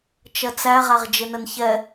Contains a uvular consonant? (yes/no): yes